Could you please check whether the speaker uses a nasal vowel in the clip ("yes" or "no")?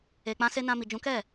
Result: yes